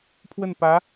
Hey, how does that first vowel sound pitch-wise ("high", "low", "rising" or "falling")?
falling